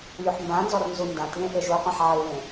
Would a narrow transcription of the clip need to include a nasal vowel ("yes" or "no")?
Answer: yes